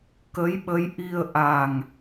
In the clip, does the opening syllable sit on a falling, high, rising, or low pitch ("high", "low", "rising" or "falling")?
rising